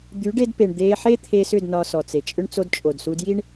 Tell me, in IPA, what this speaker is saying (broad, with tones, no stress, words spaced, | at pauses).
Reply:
d̪y˨˦ɖe˧dpe˨ɳ d̪e˧ħe˦t̪ʰe˧sʏ˦˨d nɒ˧sɔ˨t͡se˨t͡ʃʼʏ˦ɳ t͡so˧dt͡ʃʼo˨dsu˧dji˦ɳ